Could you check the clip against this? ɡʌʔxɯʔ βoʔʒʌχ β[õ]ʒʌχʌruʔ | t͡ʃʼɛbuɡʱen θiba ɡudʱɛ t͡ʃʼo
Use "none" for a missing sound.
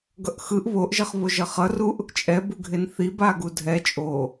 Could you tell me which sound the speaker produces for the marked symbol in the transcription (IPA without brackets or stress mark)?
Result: o